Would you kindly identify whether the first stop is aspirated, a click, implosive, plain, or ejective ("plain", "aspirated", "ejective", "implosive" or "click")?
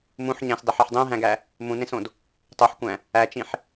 plain